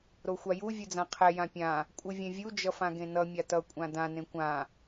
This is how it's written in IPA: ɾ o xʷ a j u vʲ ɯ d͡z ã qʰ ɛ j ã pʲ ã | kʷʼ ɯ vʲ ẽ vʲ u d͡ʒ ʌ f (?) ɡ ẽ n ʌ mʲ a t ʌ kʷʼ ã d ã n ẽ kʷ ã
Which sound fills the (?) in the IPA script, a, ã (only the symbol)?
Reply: ã